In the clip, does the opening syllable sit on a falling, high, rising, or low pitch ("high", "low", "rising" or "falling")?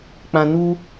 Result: low